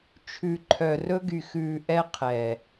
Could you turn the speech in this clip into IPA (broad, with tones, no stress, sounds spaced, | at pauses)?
t͡ʃʰ ʉ˨ ǃʰ œ˨ r ɵ˦ ɡ y˨ x ʉː˨ ʔ ɛ˦ qʰ ɛ˨